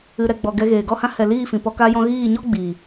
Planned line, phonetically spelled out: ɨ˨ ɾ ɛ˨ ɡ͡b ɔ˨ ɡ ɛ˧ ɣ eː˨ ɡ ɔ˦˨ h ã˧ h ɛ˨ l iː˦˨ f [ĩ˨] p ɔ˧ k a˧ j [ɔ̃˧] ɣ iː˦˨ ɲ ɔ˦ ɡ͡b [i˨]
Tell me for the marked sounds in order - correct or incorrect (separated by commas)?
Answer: correct, correct, incorrect